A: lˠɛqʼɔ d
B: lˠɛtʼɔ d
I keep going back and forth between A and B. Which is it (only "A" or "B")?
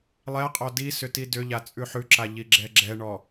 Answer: A